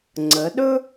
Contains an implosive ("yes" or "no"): yes